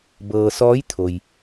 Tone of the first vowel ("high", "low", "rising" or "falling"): low